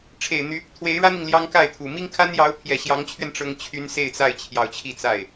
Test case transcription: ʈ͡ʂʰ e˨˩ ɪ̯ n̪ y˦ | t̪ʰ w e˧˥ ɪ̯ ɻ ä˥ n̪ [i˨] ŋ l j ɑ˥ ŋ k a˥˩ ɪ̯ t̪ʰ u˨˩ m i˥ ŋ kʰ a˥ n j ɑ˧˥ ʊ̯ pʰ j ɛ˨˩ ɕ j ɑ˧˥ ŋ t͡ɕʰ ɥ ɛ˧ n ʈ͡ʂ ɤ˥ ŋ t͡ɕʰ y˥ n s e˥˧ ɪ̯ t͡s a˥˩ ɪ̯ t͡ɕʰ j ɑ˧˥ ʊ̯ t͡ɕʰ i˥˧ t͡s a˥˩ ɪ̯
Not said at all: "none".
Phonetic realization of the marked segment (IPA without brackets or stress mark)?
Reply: i˨